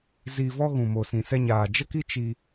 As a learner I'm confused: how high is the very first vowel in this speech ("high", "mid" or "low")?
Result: high